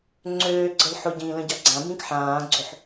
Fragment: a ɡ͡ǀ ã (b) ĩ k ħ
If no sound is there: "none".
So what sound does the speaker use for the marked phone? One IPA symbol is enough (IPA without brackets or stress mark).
b